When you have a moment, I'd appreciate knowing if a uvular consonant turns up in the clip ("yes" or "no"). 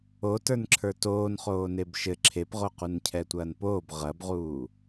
yes